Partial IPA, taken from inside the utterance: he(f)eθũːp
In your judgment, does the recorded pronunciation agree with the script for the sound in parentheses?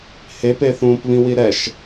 no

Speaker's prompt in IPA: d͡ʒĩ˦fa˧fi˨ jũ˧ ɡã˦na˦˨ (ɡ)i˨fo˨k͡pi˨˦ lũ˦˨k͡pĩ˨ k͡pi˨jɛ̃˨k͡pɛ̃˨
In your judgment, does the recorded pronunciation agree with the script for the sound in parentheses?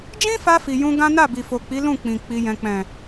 no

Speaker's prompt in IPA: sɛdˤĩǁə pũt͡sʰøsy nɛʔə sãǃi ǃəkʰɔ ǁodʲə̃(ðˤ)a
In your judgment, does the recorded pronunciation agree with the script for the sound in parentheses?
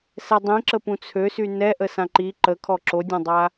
no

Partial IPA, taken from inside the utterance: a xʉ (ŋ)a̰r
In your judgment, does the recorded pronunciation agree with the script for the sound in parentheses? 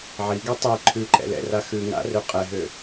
yes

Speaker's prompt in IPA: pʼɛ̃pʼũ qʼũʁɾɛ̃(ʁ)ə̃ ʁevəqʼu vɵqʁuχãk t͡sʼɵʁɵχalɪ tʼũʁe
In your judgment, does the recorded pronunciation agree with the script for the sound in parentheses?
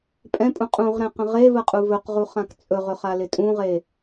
no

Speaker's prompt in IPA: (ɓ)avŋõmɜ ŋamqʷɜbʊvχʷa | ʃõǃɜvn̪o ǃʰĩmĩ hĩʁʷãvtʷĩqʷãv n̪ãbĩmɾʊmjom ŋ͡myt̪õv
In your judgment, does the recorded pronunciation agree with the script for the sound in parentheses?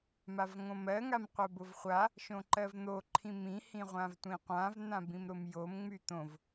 no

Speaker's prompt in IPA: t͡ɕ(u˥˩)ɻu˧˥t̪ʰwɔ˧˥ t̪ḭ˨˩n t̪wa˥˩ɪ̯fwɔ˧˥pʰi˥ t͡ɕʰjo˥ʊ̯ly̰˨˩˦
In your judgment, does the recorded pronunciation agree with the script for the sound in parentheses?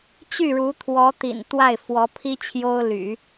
no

